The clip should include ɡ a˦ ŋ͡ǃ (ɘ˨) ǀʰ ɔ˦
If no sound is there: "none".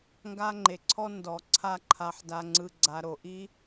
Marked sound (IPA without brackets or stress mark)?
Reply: e˨